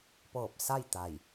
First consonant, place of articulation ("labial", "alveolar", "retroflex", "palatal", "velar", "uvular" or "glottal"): labial